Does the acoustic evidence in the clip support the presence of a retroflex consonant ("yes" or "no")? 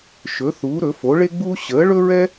yes